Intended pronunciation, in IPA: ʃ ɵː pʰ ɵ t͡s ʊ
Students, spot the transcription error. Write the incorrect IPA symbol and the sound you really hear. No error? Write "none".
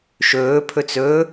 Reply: ʊ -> ɵ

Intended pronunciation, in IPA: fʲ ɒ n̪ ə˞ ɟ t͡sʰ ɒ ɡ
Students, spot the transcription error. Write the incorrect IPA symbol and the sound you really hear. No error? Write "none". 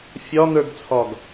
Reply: ɟ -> ɡ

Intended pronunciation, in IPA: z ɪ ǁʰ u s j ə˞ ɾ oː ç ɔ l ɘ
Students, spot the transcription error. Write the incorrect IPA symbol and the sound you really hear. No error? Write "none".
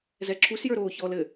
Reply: ɪ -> ɛ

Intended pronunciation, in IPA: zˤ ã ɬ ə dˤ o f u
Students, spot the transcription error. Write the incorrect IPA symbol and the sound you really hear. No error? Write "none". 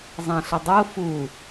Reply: none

